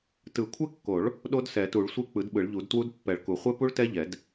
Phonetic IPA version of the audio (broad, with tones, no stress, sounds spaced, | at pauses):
t ɯ˨˩˦ kʷʰ ɛ˦˥ kː o˨˩˦ ɭ | ɗ o˦˥ d s ɛ˨˩˦ t u˨˩˦ ɭ sʷ e˦˥ k͡p ɯ˨˩˦ d ɓ ɯ˨˩˦ ɭ ʎ u˨˩˦ d t w u˦˥ d pː ɛ˨˩˦ ɭ k u˨˩˦ χʷ ɛ˦˥ p u˦˥ ɭ t ɛ˦˥ ʎ ɛ˨˩˦ d